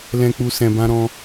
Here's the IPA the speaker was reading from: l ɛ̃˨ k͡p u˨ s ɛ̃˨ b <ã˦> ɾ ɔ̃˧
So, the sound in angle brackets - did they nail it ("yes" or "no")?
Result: no